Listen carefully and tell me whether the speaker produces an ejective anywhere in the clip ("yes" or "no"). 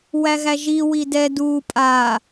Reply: yes